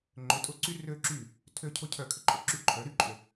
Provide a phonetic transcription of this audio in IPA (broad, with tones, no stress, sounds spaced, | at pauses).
ŋ͡ǃ ʏ˩˧ tʼ ʊ˧˩ ǀ y˧ r ø˧ ǁ y˧˩ | tʰ ø˧ cʰ ʊ˧ cʰ œ˧˩ kʰ ʏ˩˧ ǃʼ ʊ˩˧ ǁ y˧ ǃʰ œ˩˧ ɾ y˧ ǃʼ ʏ˧˩